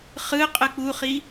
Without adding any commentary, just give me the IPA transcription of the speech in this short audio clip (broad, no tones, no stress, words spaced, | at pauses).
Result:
χɯ qʼɯk͡puχi